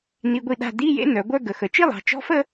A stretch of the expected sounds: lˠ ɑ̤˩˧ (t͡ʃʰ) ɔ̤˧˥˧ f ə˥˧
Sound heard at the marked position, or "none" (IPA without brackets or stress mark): t͡ʃ